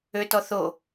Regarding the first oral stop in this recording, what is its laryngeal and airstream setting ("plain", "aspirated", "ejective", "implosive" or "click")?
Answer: plain